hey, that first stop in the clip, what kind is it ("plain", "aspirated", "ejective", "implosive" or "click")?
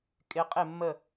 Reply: ejective